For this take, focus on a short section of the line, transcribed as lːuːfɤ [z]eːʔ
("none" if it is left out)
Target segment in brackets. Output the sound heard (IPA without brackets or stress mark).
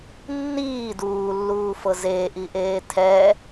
z